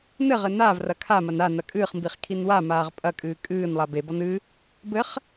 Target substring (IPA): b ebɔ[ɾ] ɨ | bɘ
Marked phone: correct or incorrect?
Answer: incorrect